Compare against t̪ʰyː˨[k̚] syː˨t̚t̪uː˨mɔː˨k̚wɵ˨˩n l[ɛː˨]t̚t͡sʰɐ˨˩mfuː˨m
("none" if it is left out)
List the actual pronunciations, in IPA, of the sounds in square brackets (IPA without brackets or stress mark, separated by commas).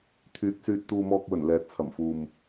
k̚, ɛː˨